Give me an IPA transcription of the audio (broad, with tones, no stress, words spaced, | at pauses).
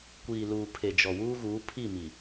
kʷiː˨luː˨ pʰe˨d͡ʒɔ˨ wuː˦ɣuː˨˦ pʰi˦˨ mi˨